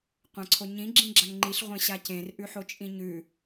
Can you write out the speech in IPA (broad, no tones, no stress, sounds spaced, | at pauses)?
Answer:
qʷ ã ǀʰ o ɲ ĩ ɡ͡ǁ ĩ ɡ͡ǁ a ŋ ŋ͡ǃ i ɬ ʁʷ ẽ ɕ a c ẽ r ʔ ʉ ħ o t͡ʃʼ ĩ ɲ ʉ